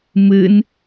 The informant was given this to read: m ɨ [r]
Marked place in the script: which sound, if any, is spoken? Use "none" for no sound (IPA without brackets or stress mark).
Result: n